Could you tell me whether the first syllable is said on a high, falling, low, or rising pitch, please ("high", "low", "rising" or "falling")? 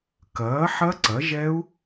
rising